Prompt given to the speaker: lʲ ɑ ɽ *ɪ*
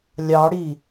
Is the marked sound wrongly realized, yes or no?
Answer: yes